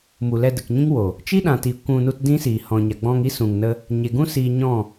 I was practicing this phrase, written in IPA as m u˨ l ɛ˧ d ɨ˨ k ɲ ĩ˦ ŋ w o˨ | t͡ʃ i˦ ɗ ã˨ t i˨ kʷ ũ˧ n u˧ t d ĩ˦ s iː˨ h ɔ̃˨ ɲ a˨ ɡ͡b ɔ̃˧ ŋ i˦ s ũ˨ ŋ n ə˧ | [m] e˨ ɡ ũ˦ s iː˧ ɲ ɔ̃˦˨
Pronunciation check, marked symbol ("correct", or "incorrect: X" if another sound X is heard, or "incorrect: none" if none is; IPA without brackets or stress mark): incorrect: ɲ